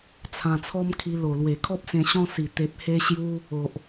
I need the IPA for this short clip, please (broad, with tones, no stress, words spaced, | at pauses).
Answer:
t͡sʰã˧t͡sʰɔ˦mkʰi˧ lo˨˩lwe˨˩kʰɔ˦p̚ sẽ˧ɕɔ̃˦si˨˩ t̪e˨p̚he˧ɕju˧ | o˨ʔ